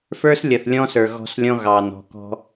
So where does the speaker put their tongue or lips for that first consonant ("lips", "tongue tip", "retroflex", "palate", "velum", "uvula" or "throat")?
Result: lips